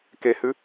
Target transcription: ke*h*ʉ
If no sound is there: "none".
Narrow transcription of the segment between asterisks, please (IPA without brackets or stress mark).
h